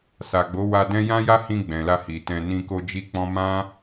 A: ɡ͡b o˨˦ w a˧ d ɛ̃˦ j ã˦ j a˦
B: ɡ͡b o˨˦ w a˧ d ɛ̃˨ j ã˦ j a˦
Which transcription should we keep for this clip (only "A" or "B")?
A